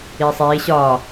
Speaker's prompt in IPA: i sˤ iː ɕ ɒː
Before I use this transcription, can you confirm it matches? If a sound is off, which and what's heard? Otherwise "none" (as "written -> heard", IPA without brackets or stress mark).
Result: i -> iː